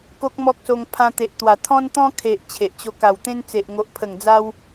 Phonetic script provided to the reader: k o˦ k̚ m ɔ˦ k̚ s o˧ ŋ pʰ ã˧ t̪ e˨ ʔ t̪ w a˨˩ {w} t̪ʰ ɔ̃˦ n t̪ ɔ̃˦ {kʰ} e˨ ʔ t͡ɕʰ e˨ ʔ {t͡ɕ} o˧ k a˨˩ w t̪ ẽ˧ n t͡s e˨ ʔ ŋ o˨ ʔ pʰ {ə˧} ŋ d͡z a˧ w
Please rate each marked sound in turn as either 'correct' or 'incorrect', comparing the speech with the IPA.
incorrect: none, correct, correct, incorrect: ə˨˩

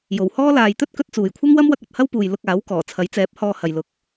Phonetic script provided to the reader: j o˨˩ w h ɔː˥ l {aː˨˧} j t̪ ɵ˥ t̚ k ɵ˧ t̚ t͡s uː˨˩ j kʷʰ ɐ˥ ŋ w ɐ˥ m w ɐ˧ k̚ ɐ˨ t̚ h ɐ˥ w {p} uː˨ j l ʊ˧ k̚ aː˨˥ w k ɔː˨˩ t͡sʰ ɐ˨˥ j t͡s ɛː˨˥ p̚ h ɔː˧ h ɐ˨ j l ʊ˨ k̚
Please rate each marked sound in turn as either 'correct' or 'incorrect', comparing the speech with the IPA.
incorrect: aː˨, correct

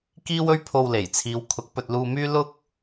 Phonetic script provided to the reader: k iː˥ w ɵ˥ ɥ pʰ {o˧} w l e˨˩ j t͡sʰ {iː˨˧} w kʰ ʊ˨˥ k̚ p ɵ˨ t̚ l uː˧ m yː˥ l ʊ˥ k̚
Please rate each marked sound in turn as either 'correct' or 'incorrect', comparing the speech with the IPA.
correct, correct

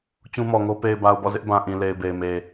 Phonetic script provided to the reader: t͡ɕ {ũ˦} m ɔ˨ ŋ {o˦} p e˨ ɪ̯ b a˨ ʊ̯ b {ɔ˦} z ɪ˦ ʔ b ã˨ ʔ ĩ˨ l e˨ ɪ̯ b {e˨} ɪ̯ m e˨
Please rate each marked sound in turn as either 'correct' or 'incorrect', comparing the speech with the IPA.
correct, correct, incorrect: ɔ̰˦˨, correct

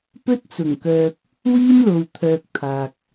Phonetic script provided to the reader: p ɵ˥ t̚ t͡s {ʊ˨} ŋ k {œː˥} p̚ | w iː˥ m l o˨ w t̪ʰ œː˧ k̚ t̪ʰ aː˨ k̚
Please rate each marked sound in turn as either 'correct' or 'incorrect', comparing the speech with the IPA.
incorrect: ʊ˨˩, incorrect: œː˨

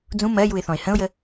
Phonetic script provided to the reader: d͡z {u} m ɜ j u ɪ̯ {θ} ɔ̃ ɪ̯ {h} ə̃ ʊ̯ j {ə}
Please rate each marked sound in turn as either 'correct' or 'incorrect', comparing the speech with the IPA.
incorrect: ũ, correct, correct, correct

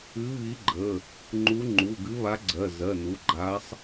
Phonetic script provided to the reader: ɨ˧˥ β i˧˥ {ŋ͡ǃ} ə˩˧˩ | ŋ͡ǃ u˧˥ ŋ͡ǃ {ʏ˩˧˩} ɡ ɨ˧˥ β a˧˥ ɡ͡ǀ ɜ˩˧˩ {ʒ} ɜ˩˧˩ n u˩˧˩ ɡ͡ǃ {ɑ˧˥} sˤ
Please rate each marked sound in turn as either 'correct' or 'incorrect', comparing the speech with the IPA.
incorrect: ɡ͡ǃ, incorrect: u˩˧˩, incorrect: z, incorrect: a˧˥

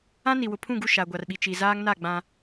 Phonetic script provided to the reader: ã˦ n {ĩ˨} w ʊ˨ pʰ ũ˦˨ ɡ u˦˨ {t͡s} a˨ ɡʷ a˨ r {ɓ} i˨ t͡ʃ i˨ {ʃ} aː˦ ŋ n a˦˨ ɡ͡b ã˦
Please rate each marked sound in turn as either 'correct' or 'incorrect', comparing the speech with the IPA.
incorrect: i˨, incorrect: ʃ, correct, incorrect: z

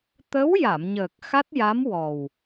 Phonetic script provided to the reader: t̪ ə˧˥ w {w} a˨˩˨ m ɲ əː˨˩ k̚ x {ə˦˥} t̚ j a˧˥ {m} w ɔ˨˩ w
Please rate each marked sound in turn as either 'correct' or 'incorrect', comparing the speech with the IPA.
incorrect: j, incorrect: a˦˥, correct

